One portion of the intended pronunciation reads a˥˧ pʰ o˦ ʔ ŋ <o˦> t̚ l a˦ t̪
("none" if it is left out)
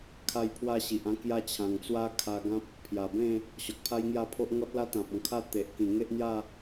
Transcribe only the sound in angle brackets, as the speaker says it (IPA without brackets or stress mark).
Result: ɔ˦